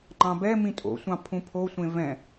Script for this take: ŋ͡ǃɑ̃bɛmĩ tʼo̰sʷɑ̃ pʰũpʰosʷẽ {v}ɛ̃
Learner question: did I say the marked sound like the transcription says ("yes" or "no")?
yes